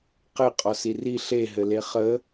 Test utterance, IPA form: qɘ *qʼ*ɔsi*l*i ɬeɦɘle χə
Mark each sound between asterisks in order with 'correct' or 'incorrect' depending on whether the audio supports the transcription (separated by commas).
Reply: correct, incorrect